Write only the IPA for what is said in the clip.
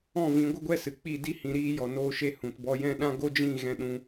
ɔ̃˦˨ v ĩ˨˦ ɡʷ ə˦ ɡʷ ɛ˦ s ɨ˨ k͡p i˦˨ d i˦ h ĩ˧ ɾ iː˧ j ɔ˨ n oː˧ ʃ e˧ h ũ˨ t b ɔ˧ j ɛ̃˦˨ ɗ ã˦ ɡ o˦ d͡ʒ ĩ˦˨ ɣ ɛ̃˧ ɗ ũ˧

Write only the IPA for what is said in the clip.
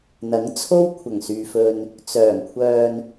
n̪ ɐ˨˥ ŋ t͡sʰ o˥ w kʷʰ ɐ˨˩ ŋ s yː˨ f ɵ˧ n | t͡s œː˨˩ ŋ kʷʰ œː˧ n

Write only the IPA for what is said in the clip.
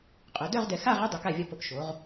qʼ œ˩˧ d œ˥˧ ʁ d ɛ˧˩ x a˥˧ ʁ e˥˧ dˤ ʊ˩˧ k a˧˩ vʲ ɒ˧˩ p o˧˩ k ʃ o˩˧ ʁ

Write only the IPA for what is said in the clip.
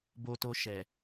b o˧ t o˧ ʃ ɛ˨

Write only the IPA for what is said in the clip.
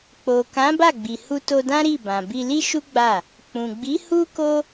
k͡p o˨ k ã˨˦ b a˦˨ ɡ͡b i˨ h u˧ t o˧ d ã˦ ɾ i˦˨ b ã˨ b i˧ l i˦ ʃ u˦ ɡ͡b a˦˨ | k͡p ũ˨ ɡ͡b i˨˦ h u˦ k o˦

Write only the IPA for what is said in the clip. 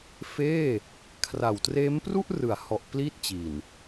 f eː˥˩ | kʰ r a˨˩ w t r eː˦˥ m p r u˥˩ ʔ r ɯ˩˦ a̯ h ɔ˨˩ ʔ p l i˥˩ t̚ t͡ɕ i˨˩ n

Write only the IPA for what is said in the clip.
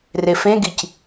r e f ẽ ɡ i c

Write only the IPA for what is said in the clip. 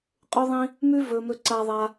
qʼ ʉ˥ ðˤ ĩ˥ | m ʉ˥ v ɵ˥ m ɵ˥ ǀ a˥ ðˤ a˥

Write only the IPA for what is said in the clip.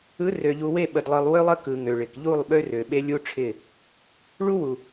ɯ˨˦ r ø˨ ʎ u˨ w e˦˨ ɓ ə˨ d lˠ ɯ˨ lˠ w ø˦ lˠ ə˦ k ɯ˨ ŋ ø˨ ɭ ɪ˨ k ʎ u˦˨ lˠ ɓ ø˦ r ø˨ ɓ e˦ lʲ u˦ ʈ͡ʂʰ ɪ˦˨ | ɭ u˦ w u˨

